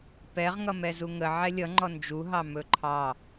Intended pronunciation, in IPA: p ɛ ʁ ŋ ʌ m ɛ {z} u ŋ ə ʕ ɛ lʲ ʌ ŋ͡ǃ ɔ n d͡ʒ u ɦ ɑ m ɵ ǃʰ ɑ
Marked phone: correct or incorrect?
correct